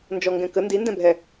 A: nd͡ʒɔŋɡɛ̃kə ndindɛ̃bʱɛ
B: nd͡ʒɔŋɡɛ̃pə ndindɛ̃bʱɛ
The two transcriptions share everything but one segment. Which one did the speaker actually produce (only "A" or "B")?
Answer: A